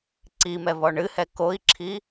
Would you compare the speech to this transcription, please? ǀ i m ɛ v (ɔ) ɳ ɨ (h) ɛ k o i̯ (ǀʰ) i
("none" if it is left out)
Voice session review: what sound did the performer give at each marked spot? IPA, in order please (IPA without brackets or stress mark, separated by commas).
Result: ɔ, h, ǁʰ